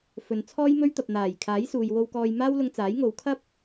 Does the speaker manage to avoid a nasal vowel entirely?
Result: yes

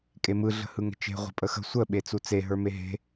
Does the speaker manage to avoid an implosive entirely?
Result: no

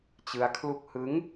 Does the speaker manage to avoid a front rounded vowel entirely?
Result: yes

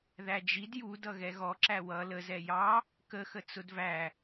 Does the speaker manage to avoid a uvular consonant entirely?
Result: yes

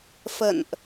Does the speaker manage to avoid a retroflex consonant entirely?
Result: yes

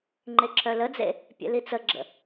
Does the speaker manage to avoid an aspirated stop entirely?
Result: no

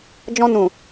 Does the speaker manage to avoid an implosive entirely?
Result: yes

